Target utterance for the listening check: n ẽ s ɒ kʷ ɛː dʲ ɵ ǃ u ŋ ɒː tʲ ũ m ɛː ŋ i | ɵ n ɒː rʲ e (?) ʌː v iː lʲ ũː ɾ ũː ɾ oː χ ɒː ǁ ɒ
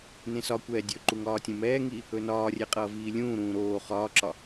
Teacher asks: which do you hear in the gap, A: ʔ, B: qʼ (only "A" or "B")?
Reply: B